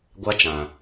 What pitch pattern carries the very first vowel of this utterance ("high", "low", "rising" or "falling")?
high